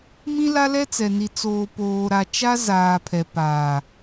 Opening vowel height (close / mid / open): close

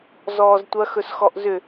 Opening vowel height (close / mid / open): mid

